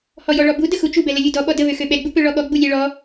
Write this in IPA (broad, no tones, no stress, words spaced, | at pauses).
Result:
hɔjɔɭɔbu dəxut͡ʃu bɛləlʲudɔ ɓɔdə βøxøɓɛ ɡ͡bupøɭɔɠɔ ɡ͡bulʲɛɭɔ